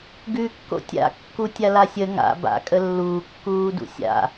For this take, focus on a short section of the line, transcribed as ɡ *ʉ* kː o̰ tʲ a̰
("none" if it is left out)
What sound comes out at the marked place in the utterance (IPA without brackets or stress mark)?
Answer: ʉ